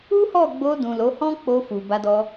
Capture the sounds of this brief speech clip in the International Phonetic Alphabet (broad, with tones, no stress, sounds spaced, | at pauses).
u˦ h ɔ˦˨ ɡ͡b o˧ d ũ˨ l o˨˦ h ɔ̃˦ k͡p o˧ f u˨ b a˧ d ɔ˧